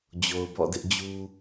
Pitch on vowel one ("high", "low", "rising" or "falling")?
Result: low